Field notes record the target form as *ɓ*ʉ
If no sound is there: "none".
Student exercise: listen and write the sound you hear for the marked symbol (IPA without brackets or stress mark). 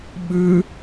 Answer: ɓ